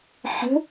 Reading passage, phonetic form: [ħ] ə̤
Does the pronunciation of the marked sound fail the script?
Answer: no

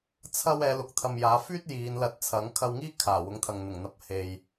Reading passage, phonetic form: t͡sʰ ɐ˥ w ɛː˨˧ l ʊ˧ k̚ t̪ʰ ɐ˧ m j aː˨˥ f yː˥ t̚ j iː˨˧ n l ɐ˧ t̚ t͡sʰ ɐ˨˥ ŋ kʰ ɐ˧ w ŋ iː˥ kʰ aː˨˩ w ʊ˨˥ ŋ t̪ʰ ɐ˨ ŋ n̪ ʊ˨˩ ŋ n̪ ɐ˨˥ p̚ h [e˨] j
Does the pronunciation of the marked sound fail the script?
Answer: no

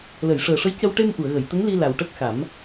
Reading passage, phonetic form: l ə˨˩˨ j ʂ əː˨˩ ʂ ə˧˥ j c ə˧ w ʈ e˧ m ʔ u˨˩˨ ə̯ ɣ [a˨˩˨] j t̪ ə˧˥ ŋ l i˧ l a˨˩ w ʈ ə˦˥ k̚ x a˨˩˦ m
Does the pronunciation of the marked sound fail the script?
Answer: yes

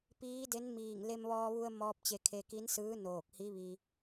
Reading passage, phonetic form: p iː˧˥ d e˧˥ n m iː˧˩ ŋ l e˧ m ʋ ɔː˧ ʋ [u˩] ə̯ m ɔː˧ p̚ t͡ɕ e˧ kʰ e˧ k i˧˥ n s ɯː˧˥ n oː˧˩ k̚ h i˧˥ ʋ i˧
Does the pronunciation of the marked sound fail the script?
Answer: yes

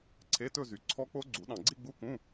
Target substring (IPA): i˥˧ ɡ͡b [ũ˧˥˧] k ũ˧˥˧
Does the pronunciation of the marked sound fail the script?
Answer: yes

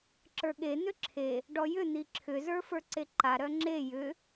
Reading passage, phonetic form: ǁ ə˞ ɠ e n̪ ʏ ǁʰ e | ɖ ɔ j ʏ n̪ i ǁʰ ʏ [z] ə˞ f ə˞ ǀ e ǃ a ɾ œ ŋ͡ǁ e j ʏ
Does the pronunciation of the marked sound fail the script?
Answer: no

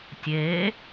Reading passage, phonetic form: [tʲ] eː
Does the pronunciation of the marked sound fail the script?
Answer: no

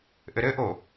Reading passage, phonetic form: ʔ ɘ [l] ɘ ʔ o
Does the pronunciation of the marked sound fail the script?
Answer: yes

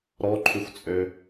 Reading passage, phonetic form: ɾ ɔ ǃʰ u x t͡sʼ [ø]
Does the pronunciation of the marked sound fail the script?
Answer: no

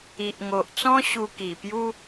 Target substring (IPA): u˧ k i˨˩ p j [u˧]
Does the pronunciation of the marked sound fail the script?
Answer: yes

